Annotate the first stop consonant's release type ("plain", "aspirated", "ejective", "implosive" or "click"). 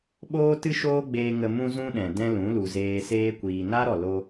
implosive